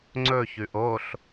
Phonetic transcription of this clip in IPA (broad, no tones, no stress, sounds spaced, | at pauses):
ŋ͡ǀ ɵ ç ʉ ʔ o ɬ